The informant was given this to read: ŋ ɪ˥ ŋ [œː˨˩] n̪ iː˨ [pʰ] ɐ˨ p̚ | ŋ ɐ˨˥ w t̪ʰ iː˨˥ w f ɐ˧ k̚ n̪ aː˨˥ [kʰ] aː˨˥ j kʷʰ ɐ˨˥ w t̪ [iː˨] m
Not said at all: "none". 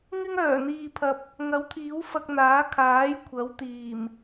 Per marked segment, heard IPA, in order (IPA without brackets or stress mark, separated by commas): œː˨˩, pʰ, kʰ, iː˨˩